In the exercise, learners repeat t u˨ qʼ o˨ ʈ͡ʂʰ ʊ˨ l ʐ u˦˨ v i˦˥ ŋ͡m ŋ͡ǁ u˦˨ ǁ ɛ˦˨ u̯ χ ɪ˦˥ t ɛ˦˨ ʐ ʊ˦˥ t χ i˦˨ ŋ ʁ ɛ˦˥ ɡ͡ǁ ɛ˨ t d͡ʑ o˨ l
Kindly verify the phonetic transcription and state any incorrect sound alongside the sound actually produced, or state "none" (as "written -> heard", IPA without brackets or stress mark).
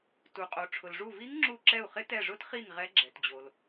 ŋ͡m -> ŋ